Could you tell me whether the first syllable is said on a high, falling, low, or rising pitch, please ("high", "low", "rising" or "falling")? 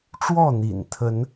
falling